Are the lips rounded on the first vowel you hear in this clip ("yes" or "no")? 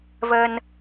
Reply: no